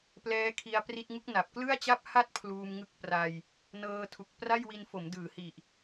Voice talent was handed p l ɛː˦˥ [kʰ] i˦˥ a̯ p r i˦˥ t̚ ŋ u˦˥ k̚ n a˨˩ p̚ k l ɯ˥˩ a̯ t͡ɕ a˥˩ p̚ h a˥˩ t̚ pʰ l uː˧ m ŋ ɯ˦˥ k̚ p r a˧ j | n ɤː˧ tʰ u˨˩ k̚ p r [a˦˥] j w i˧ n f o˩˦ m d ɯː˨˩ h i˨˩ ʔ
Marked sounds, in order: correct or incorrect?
correct, incorrect: a˥˩

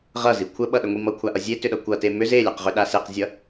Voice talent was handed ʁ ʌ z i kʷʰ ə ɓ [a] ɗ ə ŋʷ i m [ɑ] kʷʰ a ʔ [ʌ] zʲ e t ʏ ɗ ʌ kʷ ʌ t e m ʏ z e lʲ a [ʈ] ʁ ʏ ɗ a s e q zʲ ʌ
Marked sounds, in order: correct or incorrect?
incorrect: ʌ, incorrect: ʌ, correct, incorrect: q

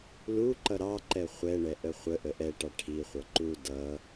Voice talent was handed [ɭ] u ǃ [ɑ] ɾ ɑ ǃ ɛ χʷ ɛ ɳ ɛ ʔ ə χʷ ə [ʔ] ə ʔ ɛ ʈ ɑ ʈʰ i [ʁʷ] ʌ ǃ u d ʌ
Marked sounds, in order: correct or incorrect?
incorrect: l, incorrect: ʌ, correct, incorrect: χʷ

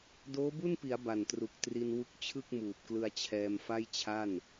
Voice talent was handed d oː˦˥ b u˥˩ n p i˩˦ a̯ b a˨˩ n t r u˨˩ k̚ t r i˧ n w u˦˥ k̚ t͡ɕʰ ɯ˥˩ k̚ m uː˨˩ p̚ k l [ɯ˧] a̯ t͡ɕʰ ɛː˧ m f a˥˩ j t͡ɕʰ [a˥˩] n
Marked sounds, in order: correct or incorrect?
correct, correct

